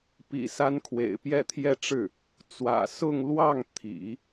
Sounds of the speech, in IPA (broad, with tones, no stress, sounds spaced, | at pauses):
p ḭ˨˩ s a˧˥ n kʰ w ḛ˨˩ ɪ̯ p j ɛ˥˧ t̪ʰ j ɛ˥˧ ʈ͡ʂ ɻ̩˥˩ | t͡s w ä̰˨˩ s ʊ˥˧ ŋ l w ɑ˥˩ ŋ t̪ʰ ḭ˨˩˦